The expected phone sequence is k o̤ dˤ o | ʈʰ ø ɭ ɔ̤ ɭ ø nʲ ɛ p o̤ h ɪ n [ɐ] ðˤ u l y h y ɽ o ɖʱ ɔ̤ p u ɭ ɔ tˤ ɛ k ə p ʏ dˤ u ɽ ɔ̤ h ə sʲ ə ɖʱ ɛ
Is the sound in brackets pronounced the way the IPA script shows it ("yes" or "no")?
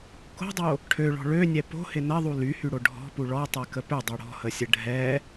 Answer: yes